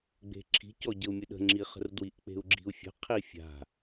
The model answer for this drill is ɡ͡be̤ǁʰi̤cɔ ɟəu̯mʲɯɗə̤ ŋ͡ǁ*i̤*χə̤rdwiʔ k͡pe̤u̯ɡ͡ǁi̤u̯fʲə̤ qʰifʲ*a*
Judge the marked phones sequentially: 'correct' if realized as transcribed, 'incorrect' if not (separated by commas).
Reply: incorrect, incorrect